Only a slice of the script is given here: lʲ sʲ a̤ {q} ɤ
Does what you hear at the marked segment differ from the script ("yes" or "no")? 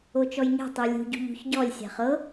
yes